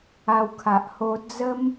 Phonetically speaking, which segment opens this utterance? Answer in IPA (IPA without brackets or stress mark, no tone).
a